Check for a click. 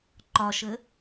present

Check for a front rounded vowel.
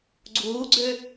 present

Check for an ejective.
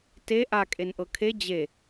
present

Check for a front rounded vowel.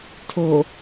absent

